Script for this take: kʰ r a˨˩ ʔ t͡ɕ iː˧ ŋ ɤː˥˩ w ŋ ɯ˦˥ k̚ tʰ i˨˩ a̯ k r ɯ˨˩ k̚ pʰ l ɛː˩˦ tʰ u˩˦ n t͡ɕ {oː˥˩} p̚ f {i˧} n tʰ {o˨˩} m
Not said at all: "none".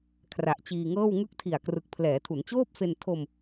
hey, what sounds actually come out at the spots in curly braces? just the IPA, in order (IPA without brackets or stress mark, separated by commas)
oː˥˩, e˧, o˧